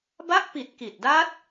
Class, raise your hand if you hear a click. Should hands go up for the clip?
no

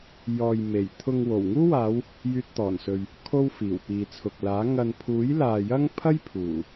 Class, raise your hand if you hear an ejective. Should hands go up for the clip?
no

